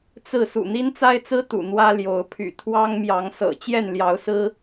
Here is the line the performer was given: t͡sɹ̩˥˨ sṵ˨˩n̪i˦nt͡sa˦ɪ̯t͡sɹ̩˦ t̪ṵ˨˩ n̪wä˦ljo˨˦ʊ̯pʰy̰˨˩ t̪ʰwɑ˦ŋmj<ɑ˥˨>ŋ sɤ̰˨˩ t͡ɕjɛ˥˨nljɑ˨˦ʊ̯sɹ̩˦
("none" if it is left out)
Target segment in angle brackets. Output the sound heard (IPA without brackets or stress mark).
ɑ˨˦